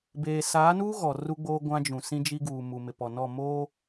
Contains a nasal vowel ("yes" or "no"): yes